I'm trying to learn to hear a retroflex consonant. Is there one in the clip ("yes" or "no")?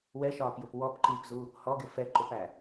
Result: no